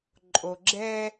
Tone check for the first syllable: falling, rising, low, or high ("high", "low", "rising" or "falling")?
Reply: low